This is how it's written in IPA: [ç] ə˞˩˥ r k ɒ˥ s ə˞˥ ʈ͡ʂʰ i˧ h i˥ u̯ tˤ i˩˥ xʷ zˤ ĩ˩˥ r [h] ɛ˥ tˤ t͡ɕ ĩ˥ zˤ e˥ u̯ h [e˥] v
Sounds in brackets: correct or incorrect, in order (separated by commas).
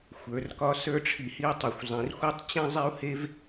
incorrect, incorrect, correct